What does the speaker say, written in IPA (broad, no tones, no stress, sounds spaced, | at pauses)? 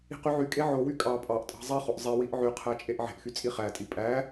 i̤ q y ʕ y kʼ e ʕ o w y kʼ ɑ pʼ ɑ ʔ tʼ ɑ̤ zˤ i χ o ʔ zˤ i w i ʔ ʕ y qʰ æ t͡ʃʼ e ʔ ʕ e̤ ʔ x y t͡sʼ i χ æ tʼ i pʼ æ